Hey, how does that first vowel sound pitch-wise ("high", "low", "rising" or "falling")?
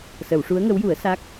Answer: low